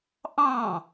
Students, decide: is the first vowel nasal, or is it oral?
nasal